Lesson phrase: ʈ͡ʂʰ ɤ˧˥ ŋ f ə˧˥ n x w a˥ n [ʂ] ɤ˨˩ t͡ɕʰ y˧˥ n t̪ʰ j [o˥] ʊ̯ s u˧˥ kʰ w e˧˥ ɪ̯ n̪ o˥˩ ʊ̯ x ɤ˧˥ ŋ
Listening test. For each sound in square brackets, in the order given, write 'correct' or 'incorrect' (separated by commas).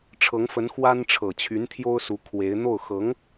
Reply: incorrect, correct